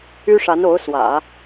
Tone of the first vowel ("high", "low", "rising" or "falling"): high